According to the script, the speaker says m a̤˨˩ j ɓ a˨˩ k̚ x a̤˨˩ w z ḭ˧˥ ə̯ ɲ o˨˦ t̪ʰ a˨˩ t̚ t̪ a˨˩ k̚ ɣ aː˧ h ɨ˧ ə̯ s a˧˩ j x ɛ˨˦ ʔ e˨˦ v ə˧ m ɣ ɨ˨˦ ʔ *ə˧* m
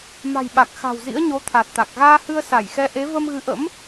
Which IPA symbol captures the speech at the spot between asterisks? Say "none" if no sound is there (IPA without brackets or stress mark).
ə̰˧˥